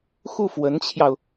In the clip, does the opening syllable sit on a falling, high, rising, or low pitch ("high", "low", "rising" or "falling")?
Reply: falling